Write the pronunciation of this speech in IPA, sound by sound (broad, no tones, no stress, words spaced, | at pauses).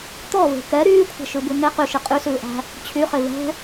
t̪ɔve̤ kɛ ɾyːkʷʰɛ̤ʃʉbʉ ŋe qyʃi qʼysʉːʔæ̤ | t͡ɕʰyχe vɛ̤